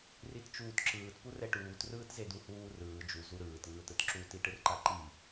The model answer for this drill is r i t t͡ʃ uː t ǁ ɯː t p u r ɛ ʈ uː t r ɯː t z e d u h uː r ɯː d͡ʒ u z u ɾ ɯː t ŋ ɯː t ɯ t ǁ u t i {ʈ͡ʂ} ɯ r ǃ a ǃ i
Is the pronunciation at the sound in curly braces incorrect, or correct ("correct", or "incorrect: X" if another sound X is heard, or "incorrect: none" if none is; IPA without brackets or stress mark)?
incorrect: ʈ